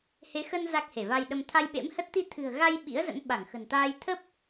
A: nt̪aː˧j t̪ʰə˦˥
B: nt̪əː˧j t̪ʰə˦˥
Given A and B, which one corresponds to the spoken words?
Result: A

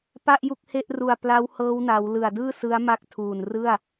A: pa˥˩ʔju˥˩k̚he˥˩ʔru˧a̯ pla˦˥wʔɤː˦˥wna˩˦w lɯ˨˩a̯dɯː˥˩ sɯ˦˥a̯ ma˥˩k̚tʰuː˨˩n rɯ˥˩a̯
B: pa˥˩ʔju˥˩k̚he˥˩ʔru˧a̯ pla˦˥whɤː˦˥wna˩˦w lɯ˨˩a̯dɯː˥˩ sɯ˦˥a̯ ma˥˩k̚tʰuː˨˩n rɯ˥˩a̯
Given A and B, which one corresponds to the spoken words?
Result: B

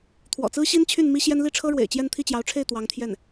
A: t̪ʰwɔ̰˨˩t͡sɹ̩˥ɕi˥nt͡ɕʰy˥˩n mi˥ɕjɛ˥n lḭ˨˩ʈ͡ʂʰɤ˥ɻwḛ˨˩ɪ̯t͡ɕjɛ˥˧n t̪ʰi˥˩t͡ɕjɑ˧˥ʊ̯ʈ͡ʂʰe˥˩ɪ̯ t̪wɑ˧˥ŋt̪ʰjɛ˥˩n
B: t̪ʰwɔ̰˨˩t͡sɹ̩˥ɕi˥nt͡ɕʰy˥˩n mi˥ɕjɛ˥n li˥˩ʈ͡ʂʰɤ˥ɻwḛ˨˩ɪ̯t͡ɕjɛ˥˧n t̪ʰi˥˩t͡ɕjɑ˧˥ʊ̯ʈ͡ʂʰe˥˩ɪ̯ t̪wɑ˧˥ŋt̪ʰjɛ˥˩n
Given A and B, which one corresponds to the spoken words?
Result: B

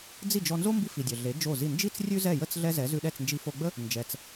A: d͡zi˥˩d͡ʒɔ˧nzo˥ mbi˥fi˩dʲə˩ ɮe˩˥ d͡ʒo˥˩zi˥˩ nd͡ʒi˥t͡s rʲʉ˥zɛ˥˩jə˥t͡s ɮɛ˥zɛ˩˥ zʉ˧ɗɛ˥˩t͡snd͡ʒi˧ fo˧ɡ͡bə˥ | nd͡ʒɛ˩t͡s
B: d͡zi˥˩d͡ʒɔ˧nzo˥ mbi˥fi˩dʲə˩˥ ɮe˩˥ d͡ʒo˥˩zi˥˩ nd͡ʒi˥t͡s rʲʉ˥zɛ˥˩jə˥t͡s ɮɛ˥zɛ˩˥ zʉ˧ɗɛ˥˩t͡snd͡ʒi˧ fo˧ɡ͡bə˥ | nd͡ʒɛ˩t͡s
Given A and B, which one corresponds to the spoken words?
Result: A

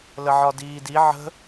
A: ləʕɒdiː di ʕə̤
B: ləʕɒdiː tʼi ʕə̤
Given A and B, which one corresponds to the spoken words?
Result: A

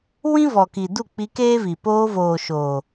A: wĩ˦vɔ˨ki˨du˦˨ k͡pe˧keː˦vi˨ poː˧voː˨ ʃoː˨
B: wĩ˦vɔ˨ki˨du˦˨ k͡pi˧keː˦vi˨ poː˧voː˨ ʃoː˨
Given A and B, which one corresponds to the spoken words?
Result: B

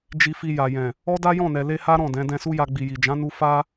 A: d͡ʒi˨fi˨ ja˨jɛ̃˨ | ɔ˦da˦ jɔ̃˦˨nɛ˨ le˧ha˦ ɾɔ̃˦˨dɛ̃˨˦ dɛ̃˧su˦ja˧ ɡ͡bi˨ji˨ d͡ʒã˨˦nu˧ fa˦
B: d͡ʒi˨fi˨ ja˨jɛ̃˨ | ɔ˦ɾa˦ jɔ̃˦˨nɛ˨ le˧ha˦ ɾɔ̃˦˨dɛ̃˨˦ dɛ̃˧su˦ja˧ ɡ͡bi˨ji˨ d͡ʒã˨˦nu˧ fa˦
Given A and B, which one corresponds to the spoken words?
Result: A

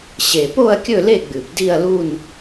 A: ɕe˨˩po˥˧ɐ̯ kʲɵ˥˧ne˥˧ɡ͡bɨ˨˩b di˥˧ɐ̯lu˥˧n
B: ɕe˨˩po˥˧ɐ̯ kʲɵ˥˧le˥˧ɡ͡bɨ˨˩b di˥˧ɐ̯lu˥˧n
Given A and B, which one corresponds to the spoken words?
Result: B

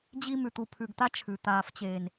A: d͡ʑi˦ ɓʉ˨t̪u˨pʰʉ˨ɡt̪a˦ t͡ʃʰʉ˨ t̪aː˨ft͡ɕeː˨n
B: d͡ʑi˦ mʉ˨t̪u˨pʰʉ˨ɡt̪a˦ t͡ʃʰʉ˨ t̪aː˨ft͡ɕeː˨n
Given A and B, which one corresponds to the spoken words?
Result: B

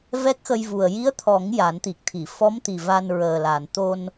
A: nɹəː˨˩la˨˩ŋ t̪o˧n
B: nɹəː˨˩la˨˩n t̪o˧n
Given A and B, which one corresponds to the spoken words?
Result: B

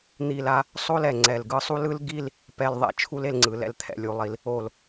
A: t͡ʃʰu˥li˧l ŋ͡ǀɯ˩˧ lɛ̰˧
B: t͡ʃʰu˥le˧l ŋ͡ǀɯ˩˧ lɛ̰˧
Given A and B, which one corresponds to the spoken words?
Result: B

